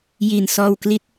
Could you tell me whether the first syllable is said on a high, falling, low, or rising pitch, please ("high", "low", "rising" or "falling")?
low